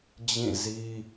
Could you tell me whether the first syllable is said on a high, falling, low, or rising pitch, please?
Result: falling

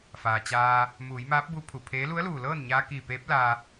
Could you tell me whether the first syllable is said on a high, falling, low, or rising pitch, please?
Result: low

